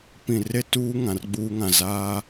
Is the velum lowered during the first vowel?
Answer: yes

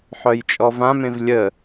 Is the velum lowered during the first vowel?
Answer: no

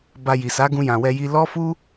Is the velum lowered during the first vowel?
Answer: no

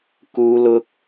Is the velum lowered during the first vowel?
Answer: no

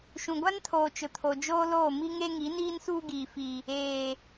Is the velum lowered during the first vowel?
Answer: yes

